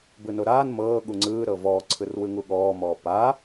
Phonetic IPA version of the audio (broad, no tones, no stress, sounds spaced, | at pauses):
b ɯ n o ɾ aː n m ɤː ɠ u ŋ͡ǀ ɯː ɾ ɤ v ɔː ǀʰ ɯ r w ɯ ŋ u ɠ ɔː m ɔː p a